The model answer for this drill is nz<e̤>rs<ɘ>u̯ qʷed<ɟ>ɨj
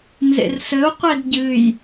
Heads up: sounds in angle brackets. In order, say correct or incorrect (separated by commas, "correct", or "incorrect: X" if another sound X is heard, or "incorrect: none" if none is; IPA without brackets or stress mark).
incorrect: ḛ, correct, correct